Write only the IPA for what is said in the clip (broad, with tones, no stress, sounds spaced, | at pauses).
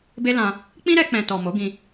b e˦ l ã˧ | k͡p ĩ˦ ɾ ɛ˧ k͡p ɛ̃˨ t ɔ˨ m o˨˦ ɡ ĩ˧